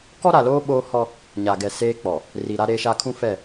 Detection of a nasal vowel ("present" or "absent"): present